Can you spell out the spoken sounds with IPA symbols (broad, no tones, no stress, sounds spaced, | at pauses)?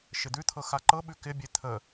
ʃ ɪ d̪ ʉ t̪ʰ ɤ x a ǃ ɤ ɓ ʉ k ɪ bʲ e t̪ʰ ə